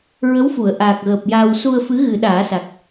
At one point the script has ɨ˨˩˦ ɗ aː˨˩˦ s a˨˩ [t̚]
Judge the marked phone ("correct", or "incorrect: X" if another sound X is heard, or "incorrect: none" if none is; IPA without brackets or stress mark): incorrect: k̚